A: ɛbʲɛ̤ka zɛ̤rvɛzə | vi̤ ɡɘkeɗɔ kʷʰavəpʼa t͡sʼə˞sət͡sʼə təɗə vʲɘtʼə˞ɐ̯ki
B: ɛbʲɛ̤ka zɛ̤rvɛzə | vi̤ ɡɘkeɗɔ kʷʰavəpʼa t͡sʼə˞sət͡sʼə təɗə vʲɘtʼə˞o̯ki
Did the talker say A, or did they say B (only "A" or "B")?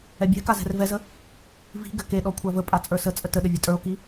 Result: B